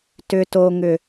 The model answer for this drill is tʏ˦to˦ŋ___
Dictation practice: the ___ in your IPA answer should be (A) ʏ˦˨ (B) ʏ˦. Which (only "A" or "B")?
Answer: B